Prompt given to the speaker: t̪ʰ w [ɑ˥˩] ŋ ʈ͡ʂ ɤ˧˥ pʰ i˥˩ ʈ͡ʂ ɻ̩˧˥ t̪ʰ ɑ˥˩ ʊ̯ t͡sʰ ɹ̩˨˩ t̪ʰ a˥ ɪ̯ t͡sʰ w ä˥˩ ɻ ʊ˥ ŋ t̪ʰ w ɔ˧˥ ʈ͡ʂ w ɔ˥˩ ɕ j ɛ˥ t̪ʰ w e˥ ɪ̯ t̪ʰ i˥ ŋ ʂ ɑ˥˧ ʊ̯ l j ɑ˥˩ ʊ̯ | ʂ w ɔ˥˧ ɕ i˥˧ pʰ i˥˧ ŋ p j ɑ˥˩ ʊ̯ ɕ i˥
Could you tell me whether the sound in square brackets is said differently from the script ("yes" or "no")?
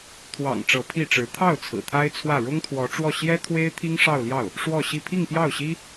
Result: yes